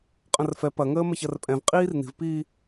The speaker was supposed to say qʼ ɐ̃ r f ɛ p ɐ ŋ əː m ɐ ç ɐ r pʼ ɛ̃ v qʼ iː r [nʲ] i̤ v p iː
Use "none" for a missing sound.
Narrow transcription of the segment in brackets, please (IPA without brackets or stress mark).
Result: n